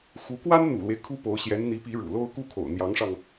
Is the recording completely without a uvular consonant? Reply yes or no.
yes